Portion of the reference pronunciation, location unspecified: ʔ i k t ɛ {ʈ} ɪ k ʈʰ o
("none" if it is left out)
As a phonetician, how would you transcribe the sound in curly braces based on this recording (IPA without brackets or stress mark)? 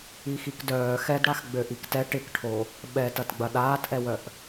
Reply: ʈ